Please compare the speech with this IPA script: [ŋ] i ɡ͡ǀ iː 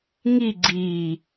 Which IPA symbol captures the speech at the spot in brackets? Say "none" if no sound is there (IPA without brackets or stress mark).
ŋ